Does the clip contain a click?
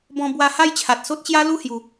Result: no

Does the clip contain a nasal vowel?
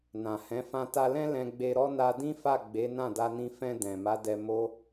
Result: yes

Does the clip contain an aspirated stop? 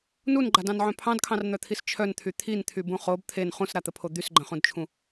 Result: yes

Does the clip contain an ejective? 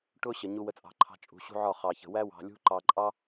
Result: yes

